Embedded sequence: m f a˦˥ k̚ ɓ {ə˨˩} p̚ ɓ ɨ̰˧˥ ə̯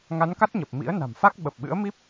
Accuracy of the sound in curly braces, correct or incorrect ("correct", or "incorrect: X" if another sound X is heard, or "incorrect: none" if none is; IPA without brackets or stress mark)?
correct